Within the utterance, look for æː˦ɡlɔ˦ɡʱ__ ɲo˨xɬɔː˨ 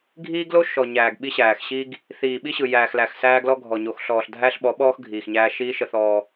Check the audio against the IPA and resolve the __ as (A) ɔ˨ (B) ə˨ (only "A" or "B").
A